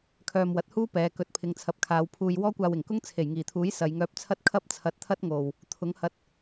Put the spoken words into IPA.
kʰœː˧mwɐ˨˥t̚huː˥pɛː˨˧ kɵ˨˥t̚pʰɪ˨˧ŋt͡sʰɐ˨p̚kʰaː˨˧w pʰuː˨j wɔː˥kʷaː˧wɪ˨˩ŋkʊ˥ŋ t͡sʰe˨˩jŋiː˨˩t̪ʰuː˨˥j sɐ˨˧jŋœː˧p̚t͡sʰɐ˥t̚ kʰɐ˥p̚t͡sʰɐ˧t̚t̪ʰɐ˥t̚ ŋo˨w | t̪ʰʊ˨˥ŋhɐ˧t̚

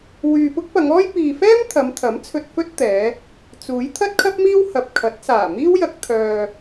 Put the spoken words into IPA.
wyː˨pʊ˥k̚pɐ˨˧ŋɔː˥j piː˨fɛː˥m t̪ʰɐ˨˧mt̪ʰɐ˨˥mt͡sʰɵ˧t̚ fɵ˥t̚t̪ɛː˨˧ | t͡suː˨˥j t̪ʰɐ˥t̚kʰɐ˥p̚miː˥w hɐ˨p̚kʰɐ˨˥t̚ saː˨˩miː˥wjɐ˧k̚ t̪ʰœː˧

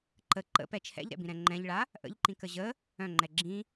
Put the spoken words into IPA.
ǃə ǃə̰pɛ t͡ʃʰɛ̰ʎɾɛ̰bĩɾɛ̃ ŋ͡ǃɛ̃ʎɭa | ʔə̰ʎǃĩkə ʑə | œ̃ŋ͡ǃɛ ɡ͡ǁĩ

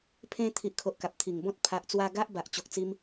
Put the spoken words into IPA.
pʰẽ˧ t̪ʰi˨ʔkʰo˨ʔ ka˨p̚t̪ʰi˨˩ŋbɔ̃˦t̚ pʰa˨ʔt͡swa˧ ɡa˦ʔba˨ʔ t͡ɕo˨k̚t͡si˧m

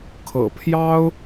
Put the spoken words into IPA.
kʰɤ̰˨˩pʰjɑ˥ʊ̯

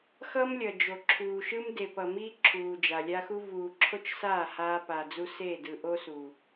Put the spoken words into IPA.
xʌ˦mlʲʌ˨ d͡ʒo˨ǁʰuː˨ʃɯ˦m de˨pʌ˨miː˦ ǁʰuː˨d͡ʒa˨lʲa˦xu˦ vuː˨ǁʰo˦t͡ʃsaː˦˨ haː˦pa˨d͡zu˦ se˦˨dɯ˨ʔo˦su˨

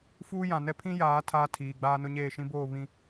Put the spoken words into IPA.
fuː˦jã˨nɛ˦ pʰĩ˦ jaː˨˦ tʰaː˦tʰiː˨ɡ͡baː˦nʊ˦ ɲeː˦˨ʃĩ˦boː˦˨ βĩ˨

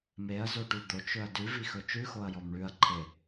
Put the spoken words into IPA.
meɐ̯zoʈʉ d̪ot͡ʃɵɐ̯ dʉvixɵ t͡ʃʉxoɐ̯jɔm ɳʉɐ̯ǃʰe

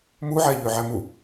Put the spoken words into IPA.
muʕæʎøʕæ mu

